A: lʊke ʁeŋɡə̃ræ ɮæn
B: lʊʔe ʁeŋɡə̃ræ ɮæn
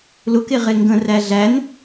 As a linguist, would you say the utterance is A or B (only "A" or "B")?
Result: A